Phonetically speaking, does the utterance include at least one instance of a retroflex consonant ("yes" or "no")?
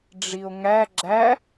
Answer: yes